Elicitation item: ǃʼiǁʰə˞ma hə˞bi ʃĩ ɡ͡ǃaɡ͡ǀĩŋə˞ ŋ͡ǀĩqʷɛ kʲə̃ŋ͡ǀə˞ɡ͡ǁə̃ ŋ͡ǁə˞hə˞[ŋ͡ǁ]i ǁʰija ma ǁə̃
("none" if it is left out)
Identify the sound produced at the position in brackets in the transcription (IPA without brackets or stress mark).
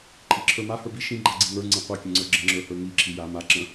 ŋ